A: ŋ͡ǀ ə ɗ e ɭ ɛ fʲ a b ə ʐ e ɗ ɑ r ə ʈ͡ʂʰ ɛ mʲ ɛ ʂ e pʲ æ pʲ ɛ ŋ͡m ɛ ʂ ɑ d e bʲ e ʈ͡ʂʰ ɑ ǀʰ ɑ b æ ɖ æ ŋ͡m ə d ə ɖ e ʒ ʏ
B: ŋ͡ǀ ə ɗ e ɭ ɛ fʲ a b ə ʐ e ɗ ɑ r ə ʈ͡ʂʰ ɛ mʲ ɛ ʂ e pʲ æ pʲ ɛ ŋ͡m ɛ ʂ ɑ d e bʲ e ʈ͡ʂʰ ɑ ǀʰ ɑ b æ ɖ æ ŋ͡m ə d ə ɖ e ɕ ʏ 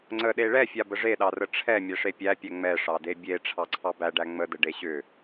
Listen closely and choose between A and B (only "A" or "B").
B